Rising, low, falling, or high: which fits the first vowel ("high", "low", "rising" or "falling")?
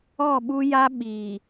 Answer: falling